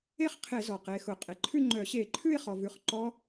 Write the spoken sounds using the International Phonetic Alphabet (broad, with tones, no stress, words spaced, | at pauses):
e˥˧χqʰe˧˩˧ zɔ˩qe˩˧˩xʊ˧˩˧ qʼe˩ǃʰʉ˥˧ŋ͡ǃœ˧˩˧ ɕe˧˩˧ǃʰʉ˥˧ɪ̯χɔ˩vʉ˩˧˩χ ǃɔ˦˥